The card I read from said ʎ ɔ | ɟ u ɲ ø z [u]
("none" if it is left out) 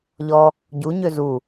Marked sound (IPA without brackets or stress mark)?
u